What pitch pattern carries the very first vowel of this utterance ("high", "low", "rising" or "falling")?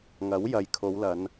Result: rising